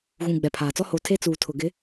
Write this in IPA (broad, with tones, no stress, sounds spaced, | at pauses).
ɣ ũ˨ ɡ͡b ɛ˨ pʰ aː˨ t͡s ɔ˦ h o˦ tʰ e˦ t͡s uː˨ tʰ ʊ˨ ɡ ɪ˨˦